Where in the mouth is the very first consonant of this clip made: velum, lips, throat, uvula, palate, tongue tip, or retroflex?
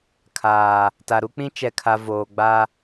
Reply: velum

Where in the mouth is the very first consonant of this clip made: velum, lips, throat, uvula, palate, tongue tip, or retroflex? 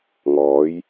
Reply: velum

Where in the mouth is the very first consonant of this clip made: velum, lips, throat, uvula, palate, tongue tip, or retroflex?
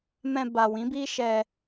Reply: lips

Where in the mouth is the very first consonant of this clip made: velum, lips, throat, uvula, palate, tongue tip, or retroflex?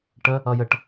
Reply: retroflex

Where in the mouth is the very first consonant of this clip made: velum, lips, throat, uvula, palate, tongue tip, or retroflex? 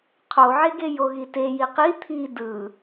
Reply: uvula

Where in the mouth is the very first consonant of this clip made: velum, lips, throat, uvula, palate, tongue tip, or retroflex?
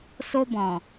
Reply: tongue tip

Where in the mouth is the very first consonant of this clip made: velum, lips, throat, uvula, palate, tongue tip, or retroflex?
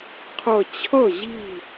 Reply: uvula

